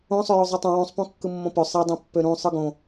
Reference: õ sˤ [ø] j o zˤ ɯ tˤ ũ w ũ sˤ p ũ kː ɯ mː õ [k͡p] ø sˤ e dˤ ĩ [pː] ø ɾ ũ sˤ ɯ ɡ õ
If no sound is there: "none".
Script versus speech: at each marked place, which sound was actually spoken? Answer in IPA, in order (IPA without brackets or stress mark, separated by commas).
ø, p, pː